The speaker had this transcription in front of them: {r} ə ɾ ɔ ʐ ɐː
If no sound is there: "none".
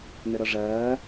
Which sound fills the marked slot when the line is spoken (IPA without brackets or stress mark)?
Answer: n